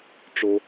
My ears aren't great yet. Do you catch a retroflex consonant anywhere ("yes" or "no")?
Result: yes